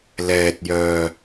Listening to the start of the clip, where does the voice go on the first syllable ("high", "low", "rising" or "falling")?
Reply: low